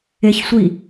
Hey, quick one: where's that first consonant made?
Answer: palate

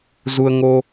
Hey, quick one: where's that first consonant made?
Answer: tongue tip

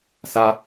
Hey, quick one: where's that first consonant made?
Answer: tongue tip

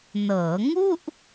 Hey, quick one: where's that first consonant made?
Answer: tongue tip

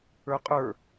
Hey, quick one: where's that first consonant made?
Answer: uvula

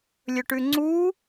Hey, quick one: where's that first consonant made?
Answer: tongue tip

